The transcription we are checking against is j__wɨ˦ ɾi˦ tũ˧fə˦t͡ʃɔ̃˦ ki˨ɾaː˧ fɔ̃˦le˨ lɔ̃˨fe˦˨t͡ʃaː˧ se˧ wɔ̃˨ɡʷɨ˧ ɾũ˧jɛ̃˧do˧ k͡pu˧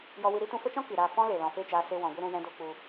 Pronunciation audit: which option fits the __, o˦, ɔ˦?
ɔ˦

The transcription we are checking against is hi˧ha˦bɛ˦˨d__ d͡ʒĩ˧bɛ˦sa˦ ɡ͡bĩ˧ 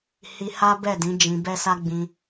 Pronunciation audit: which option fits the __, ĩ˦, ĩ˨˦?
ĩ˨˦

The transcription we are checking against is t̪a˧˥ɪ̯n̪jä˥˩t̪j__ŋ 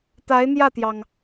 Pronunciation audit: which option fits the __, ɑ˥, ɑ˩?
ɑ˩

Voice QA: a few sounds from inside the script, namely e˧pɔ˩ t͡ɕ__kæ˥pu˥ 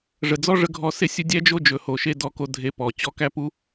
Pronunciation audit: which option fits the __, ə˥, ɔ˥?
ɔ˥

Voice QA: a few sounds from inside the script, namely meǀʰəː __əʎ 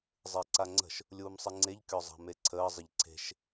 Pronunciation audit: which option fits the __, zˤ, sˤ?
zˤ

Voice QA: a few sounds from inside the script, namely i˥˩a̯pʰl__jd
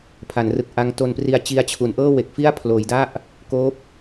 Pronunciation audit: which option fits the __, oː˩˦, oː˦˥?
oː˩˦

